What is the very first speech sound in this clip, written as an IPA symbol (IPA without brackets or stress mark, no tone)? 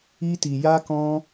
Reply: i